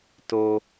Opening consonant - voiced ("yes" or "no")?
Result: no